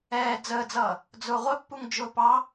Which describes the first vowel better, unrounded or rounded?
unrounded